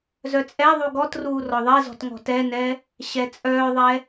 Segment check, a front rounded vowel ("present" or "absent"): present